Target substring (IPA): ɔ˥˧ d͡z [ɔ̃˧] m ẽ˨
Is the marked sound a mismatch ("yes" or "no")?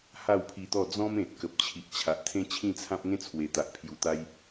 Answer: yes